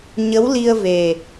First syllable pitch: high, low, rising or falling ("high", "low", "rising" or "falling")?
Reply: rising